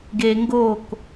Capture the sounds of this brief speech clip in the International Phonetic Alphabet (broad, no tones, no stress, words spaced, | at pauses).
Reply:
ɡe ŋɡok